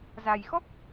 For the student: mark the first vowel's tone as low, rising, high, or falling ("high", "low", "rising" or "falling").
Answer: low